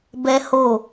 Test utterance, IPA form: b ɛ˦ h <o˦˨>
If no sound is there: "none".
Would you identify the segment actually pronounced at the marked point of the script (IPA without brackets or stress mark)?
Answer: o˦˨